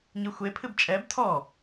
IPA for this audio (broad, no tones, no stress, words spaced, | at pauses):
ɲɨxʷepʰɨb t͡ʃʼɛb tʰɔ